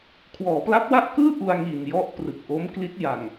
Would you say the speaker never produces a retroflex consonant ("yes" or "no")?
yes